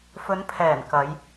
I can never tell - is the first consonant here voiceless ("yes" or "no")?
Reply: yes